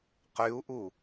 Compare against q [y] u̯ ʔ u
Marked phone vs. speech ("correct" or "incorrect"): correct